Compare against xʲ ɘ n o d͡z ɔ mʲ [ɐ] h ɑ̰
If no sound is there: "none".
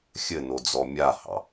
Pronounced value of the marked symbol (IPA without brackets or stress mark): a